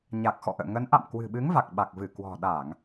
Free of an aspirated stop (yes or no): yes